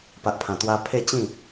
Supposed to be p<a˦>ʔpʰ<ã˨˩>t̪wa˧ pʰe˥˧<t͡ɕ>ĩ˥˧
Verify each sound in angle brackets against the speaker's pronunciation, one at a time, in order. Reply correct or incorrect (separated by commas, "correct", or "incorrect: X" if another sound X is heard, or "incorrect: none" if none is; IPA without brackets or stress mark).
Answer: incorrect: a˨, correct, correct